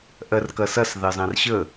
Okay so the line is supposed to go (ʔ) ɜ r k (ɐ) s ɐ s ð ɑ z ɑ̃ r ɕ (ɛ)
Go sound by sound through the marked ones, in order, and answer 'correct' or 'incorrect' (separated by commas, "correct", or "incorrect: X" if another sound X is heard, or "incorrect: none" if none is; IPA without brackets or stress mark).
correct, correct, incorrect: ə